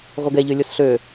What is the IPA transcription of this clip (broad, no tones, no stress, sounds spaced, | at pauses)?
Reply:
ʁʷ ə ɡ ɛ ʎ ø lʲ ʊ s ɬ ø